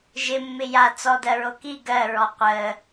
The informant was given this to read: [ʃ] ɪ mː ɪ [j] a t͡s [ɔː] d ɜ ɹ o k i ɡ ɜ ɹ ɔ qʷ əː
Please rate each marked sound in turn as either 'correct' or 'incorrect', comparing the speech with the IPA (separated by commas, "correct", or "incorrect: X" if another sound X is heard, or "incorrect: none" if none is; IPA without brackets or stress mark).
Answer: incorrect: ʒ, correct, incorrect: ɔ